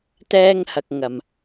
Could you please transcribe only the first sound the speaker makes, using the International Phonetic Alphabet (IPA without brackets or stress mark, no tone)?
t̪